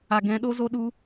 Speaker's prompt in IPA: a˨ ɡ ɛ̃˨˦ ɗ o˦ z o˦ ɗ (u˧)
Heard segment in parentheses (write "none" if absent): u˧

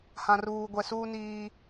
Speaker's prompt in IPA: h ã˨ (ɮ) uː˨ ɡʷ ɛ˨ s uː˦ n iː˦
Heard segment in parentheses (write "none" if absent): r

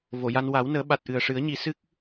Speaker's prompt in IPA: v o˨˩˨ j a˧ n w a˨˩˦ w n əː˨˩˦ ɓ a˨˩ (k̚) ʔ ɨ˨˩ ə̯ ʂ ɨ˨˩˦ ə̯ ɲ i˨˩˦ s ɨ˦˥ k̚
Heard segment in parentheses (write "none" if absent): t̚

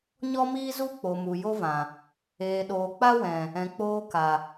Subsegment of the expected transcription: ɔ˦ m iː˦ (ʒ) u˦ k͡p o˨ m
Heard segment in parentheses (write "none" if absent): z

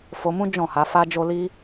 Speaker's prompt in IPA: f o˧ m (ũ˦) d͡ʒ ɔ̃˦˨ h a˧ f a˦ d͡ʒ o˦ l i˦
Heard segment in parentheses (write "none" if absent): ũ˦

